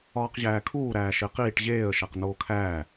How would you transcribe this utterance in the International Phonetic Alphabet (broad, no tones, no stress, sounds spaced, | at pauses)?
ɒː q ʑ æː kʰ uː ɾ æː ʃ e q iː ʈ ʑ eː ə̯ ʃ æ q n oː kʰ æː